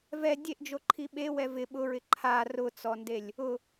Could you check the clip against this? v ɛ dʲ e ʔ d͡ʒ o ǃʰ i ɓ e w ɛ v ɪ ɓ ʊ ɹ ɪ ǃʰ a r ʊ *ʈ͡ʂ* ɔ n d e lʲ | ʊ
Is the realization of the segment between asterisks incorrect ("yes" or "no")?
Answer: yes